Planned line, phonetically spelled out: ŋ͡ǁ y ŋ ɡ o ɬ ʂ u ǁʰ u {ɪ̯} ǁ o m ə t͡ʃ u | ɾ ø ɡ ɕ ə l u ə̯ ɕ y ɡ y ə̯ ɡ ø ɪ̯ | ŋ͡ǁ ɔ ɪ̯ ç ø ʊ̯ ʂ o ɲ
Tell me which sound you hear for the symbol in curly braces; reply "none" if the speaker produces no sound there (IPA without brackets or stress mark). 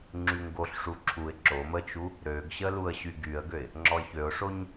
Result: ɪ̯